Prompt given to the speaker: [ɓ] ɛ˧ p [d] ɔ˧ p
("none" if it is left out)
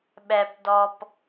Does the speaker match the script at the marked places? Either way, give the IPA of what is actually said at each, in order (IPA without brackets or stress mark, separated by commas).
ɓ, d